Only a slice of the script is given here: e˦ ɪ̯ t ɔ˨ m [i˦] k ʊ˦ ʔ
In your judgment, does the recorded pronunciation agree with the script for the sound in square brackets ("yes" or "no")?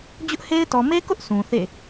no